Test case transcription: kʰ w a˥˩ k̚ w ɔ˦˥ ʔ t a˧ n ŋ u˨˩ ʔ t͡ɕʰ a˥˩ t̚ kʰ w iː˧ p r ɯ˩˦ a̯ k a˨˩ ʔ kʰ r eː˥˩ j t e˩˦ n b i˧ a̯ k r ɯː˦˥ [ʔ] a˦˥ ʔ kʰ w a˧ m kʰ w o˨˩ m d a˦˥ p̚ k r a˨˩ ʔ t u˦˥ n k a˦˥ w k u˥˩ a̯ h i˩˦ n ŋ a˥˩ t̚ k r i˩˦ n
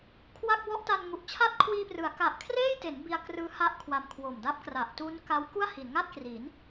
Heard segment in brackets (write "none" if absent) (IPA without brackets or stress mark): h